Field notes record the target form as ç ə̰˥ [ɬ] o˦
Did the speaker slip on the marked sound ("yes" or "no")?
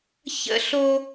no